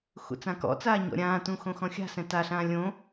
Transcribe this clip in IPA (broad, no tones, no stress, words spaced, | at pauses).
xṵt͡sãkɔ̰t͡saː ɲɔ̰ɾʲãːtũ xõxɔ̃xʲa̤sɛ̃ taɬãː lʲõ